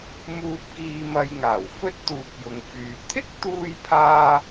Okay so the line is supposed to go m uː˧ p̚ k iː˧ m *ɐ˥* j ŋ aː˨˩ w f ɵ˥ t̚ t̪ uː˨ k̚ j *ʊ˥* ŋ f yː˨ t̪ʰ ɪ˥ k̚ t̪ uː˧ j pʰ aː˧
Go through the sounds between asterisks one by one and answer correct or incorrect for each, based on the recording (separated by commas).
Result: incorrect, incorrect